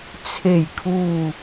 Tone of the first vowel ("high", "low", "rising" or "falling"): low